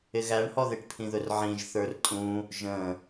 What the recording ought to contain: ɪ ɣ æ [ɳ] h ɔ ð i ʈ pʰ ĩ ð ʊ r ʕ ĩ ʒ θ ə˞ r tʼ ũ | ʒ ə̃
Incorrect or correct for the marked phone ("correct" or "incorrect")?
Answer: correct